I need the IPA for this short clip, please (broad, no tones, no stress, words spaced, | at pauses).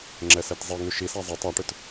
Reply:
ŋ͡ǁɛsɛtzˤiŋʉ ʃisa zˤɛ tˤaʈʏt